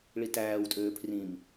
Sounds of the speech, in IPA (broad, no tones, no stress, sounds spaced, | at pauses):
ɭ i t æː w tʼ øː pʰ r ĩ m